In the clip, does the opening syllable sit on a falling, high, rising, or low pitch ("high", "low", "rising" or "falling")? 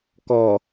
low